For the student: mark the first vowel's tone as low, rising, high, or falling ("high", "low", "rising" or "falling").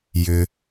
high